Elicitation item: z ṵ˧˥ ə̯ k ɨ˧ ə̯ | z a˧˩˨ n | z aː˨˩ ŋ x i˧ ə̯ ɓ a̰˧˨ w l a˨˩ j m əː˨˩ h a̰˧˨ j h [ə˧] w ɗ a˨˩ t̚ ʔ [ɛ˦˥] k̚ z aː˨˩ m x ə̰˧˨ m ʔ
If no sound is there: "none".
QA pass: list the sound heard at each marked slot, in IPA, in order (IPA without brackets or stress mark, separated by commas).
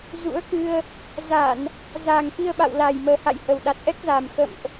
ə˨˩, ɛ˦˥